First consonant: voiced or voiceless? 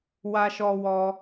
voiced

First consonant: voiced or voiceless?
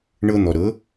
voiced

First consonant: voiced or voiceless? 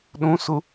voiced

